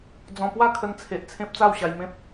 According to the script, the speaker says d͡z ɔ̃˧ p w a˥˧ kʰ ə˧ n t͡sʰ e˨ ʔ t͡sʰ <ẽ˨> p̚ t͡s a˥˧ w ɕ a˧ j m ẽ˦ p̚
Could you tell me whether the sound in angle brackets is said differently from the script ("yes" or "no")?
yes